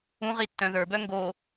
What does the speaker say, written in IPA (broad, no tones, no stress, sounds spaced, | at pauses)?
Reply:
ũ ʁ i tː œ̃ ð ə˞ b œ ŋ ɡ o